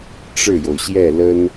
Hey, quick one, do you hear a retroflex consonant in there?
yes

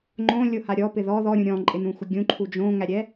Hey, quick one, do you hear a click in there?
yes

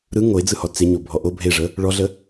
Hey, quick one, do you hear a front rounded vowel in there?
no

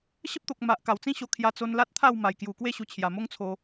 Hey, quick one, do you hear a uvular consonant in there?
no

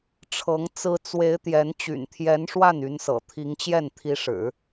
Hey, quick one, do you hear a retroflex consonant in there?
yes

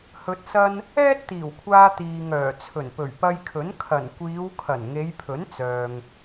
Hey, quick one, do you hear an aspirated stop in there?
yes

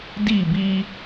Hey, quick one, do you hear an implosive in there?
no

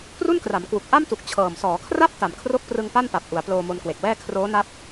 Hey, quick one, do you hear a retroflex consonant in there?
no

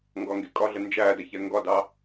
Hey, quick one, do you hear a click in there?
no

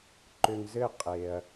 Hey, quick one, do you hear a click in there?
yes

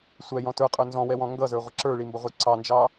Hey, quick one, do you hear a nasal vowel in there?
yes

